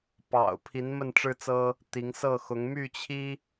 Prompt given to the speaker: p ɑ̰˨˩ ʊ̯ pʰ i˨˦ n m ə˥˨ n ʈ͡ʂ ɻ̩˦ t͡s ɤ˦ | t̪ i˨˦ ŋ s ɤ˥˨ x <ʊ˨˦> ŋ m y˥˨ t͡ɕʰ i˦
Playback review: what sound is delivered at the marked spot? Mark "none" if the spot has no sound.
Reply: ʊ˨˦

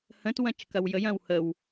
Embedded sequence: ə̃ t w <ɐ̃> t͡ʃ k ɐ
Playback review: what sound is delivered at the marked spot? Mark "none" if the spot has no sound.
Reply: ɐ̃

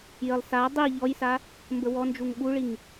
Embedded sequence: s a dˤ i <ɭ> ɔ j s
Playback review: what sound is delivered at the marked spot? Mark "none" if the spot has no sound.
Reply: ʎ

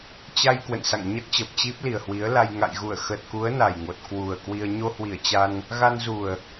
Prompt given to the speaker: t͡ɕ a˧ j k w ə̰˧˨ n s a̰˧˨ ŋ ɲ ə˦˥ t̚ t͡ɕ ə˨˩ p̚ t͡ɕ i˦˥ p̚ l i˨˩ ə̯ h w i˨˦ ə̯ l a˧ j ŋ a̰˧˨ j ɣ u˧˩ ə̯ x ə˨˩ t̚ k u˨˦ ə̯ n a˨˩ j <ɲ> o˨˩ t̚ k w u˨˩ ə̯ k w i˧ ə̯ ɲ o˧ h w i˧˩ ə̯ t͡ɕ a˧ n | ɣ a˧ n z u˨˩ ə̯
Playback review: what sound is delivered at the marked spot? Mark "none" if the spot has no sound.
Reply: ŋ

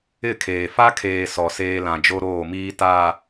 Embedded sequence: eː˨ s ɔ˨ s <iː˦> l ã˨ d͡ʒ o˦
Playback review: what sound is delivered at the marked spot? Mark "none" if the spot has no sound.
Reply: eː˦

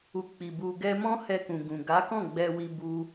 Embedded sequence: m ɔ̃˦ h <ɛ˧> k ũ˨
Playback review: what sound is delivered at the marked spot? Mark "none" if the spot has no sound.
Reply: ɛ˧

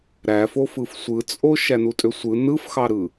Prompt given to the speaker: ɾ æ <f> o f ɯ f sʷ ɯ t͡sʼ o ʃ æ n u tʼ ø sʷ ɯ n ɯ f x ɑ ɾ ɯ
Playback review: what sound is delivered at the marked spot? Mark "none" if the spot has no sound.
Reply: f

